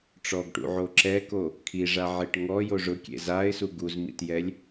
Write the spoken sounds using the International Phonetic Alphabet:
ʈ͡ʂ ɔ ɡ ʈ ṵ ʕ o ǁ ɛ k o | kʰ i ʐ a ʕ e ʈ ŋ ɔ j o ʐ ʊ kʲ ḛ z a ɪ̯ s u ɡ u z m ḭ t j ɛ lʲ

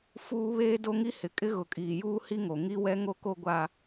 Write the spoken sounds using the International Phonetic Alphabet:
f uː˨ β eː˦ d o˦ ŋ i˦ h ɪ˨ kʼ ɪ˦ ɣ ʊ˨ kʼ iː˨ j uː˦ h i˦ ŋ o˨ ŋ i˦ w ɛ˦ ŋ o˦ k o˦ ɡʷ a˦

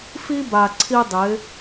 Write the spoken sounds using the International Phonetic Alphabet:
f i˦ b a˨ ǀʰ i˦ dˤ ɪː˨˦

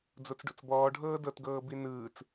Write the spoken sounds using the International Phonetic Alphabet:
d͡z o t͡s ɖ o̰ t͡s b ɔː ɖʱ ɤː d ɤ t ɡ ɤː b i n ɯː t͡s

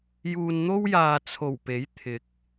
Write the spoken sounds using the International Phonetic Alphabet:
j uː˨ n n̪ o˥ w j aː˨ t͡sʰ o˨˩ w p e˨˥ j t̪ʰ ɪ˨˥ k̚

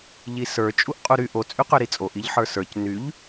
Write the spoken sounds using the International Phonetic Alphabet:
ʎ i s ə˞ t͡ʃʼ u ʔ qʼ u ɾ y ʔ o t͡sʼ y q ø ɾ i t͡sʼ o ʔ i ʎ ħ ə˞ s ə˞ c n y ʎ

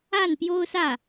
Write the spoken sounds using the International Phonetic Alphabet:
a˥˩ n p j o˥ ʊ̯ s ä˥˩

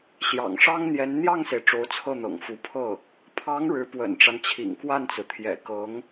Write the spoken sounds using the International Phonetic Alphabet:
ɕ j ɑ̰˨˩ ŋ ʂ ɑ˥ ŋ n̪ j ɛ˧˥ n n̪ j ɑ˥˩ ŋ s e˩ ɪ̯ ʈ͡ʂ o˧˥ ʊ̯ t͡sʰ ɤ˥˩ n̪ ɤ̰˨˩ ŋ f u˧˥ pʰ ɤ˥˩ | pʰ ɑ˧˥ ŋ ɻ ɻ̩˧˥ p w ə̰˨˩ n ʈ͡ʂ a˦ n t͡ɕʰ ḭ˨˩ ŋ k w a˥˩ n t͡s ɹ̩˩ t̪ʰ j ɛ̰˨˩ k ɤ˧˥ ŋ

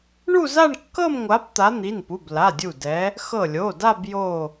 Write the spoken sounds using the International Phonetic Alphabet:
ɳ u˥˧ z a˥˧ ɳ kː ɤ˥˧ m ŋʷ a˨˦ p t̪ a˨˦ n̪ i˩˧˩ n p u˩˧˩ b l a˩˧˩ dʲ u˧˩ d ɛ˨˦ | x ɤ˧˩ lʲ o˩˧˩ d a˥˧ b j o˧˩

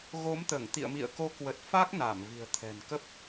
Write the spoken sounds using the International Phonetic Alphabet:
ɣ o˨˦ m t̪ əː˧˩ ŋ t̪ ḭ˧˨ ə̯ m ḭ˧˨ ə̯ k o˨˦ k w ə˨˩ t̚ f a˦˥ k̚ n aː˧˩ m v i̤˨˩ ə̯ t̪ʰ ɛ̤˨˩ n k ə˦˥ p̚

